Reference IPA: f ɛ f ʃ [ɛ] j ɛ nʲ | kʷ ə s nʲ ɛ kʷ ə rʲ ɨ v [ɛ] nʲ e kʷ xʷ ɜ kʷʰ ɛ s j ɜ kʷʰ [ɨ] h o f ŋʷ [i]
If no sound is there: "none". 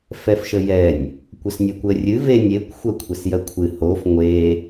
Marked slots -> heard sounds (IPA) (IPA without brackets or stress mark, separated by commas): ə, e, ɨ, e